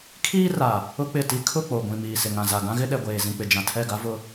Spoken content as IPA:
kʰ iː˦ r a˨ | ʊ˦ k͡p ɪ˦˨ t i˦ kʰ ʊ˦˨ k͡p o˨ ɡʷ ĩ˨ m iː˨ s ɪ˨ ŋ ã˨ z a˨ ɡ ã˦ ɣ ɪ˦ ɗ ɛ˨ ɡʷ eː˨ z ĩ˨ k͡p ɪ˨ d͡ʒ ã˨ tʰ ɛ˦˨ ɡ a˦ v ʊ˦

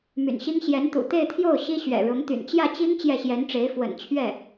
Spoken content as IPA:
m y̰˨˩ n ɕ i˥ ŋ ɕ j ɛ˧˥ n t̪ ṵ˨˩ t̪ e˥˧ ɪ̯ t̪ʰ j o˥˩ ʊ̯ ɕ i˥ ɕ ɥ ɛ̰˨˩ ɻ ʊ˧˥ ŋ t̪ y̰˨˩ n t͡ɕ j ä˥˩ t͡ɕ i˥ ŋ t͡ɕ j ɛ˥˩ ɕ j ɛ˧˥ n ʈ͡ʂ e˧˥ ɪ̯ f w ə̰˨˩ n t͡ɕʰ ɥ ɛ˥˩

